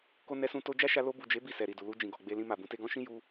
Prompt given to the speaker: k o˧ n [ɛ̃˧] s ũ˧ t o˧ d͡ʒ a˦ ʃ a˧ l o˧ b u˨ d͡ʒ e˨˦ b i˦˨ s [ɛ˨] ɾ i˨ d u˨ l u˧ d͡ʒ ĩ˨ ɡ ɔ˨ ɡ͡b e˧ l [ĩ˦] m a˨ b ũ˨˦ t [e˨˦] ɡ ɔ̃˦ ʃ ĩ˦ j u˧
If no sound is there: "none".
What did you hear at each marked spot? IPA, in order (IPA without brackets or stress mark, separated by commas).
ɛ˧, ɛ˨, ĩ˧, e˧